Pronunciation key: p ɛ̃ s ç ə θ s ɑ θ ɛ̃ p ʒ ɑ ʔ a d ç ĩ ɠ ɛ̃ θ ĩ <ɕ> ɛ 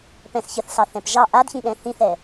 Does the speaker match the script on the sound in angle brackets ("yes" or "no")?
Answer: no